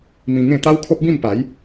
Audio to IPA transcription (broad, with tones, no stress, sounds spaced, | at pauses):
m ĩ˧ ŋ ẽ˥˧ t̪ a˦ w kʰ o˦ p̚ b ĩ˥˧ m p a˨˦ j